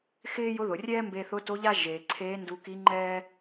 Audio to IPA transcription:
xɪː˥jʊ˧˥ðʊ˩ rʲɛː˥mbe˧ θʊ˧˥to˧˥ʎa˥ ʒeː˩ ǀʰeː˧˥ndu˧ki˧˥ŋ͡ǃɛː˥

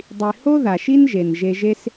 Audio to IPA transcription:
dˤi˨ho˦ ða˨ʃi˦nʒe˨n ʒe˧ʒe˦s

